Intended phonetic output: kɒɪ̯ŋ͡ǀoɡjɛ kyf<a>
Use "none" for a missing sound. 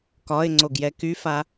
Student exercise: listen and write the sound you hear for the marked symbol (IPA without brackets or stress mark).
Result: a